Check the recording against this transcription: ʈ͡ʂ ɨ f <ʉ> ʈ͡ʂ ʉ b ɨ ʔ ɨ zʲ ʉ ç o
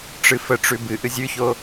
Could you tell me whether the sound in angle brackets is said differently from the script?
yes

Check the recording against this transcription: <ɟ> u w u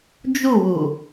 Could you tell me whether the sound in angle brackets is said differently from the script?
yes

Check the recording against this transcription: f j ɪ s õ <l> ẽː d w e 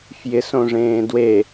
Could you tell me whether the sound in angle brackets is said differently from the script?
yes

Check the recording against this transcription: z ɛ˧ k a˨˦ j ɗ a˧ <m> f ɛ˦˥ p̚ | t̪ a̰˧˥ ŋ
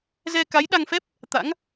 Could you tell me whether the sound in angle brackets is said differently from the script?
yes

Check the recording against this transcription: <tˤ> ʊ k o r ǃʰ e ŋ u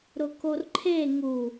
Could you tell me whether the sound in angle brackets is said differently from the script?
yes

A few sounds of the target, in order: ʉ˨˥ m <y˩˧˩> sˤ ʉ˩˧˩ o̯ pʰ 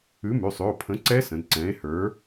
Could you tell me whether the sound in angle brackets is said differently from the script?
no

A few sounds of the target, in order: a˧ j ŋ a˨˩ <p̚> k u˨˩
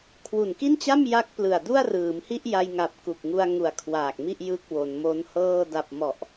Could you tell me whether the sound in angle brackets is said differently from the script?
no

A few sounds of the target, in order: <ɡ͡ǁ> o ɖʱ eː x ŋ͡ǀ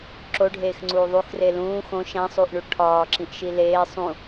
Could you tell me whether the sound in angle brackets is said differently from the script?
yes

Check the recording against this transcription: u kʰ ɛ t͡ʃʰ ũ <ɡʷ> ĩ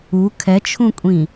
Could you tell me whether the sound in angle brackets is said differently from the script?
yes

